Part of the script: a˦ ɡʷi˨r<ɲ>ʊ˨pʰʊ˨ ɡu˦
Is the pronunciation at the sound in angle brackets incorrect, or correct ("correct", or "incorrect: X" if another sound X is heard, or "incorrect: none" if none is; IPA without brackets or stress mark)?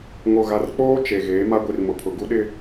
incorrect: m